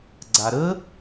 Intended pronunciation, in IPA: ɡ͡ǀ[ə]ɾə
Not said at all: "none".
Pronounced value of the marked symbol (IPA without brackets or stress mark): a